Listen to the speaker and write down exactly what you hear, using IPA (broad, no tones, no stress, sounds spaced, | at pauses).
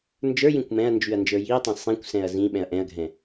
n d͡ʒ ə˞ j ĩ kʷ m ɛ̃ ɐ̯ n d͡ʒ y ɐ̯ n d͡ʒ ə˞ j i ɐ̯ tˤ ɛ̃ sˤ ĩ kʷ s ɛ̃ ɐ̯ z ĩ ɓ ɛ̃ ɐ̯ ʔ ɛ̃ ɐ̯ ɡʱ ɛ̃